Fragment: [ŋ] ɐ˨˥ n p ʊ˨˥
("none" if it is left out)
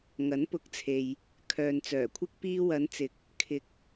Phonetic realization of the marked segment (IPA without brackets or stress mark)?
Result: ŋ